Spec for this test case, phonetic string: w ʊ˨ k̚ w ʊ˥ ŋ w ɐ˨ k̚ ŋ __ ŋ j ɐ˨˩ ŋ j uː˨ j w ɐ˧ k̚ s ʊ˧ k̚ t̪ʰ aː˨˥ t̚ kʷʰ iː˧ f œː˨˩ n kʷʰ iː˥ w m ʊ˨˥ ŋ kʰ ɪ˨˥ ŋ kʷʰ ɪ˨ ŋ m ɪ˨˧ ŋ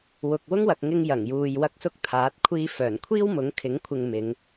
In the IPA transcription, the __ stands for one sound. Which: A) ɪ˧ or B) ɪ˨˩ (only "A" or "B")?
A